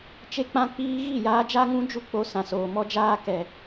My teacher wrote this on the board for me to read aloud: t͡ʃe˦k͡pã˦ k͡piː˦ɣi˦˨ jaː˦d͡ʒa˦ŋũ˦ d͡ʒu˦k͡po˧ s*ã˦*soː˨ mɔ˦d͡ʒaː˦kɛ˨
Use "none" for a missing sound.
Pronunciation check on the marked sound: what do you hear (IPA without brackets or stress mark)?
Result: ã˨